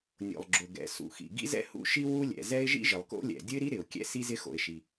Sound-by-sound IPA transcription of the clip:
nʲo̰˩lˠɡ͡ǁʊ˩ ɡɛ̰˩ sṵ˩xḭ˩ ɡḭ˥zɛ̰˥hṵ˥ʃi˥ wu˥lʲɛ̰˩zɛ˥ɪ̯ ʒḭ˥ʒɪ˩lˠko̰˥lʲɛ̰˩ dʲʊ˥ɪ̯ɾi˥ ɾɪ˩ʊ̯kʲɛ̰˥ si˥zɪ˥xo̰˩ɪ̯ ʃi˩

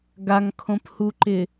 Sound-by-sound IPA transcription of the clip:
ɡaŋkʰõphuǃɪ

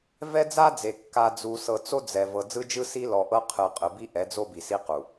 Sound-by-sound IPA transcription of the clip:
vɛ˦d͡za˦d͡ze˨ kːa˨ d͡zu˨sɤ˨t͡so˦ d͡zɛ˨ vɤ˨d͡zɯ˦d͡ʒɯ˦si˦ lɔ˨ʔɤ˦qʰɯ˨ qʼɯ˨bi˦ʔɛ˨˦d͡zo˦ bi˨si˦qu˨

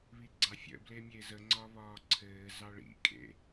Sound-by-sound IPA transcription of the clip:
βiɡ͡ǀɑfʲə̰ blemʲezə ŋ͡ǀɒβɒːǀʰɘː zɑɭḭ kʼḛ

